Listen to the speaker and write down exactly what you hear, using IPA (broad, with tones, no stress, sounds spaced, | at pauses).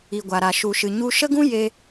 i˨ ɡʷ a˨ ɾ a˨ ʃ u˨ ʃ ɨ˨ ɲ u˧ ʃ ə˦ ɡ ũ˦ j e˧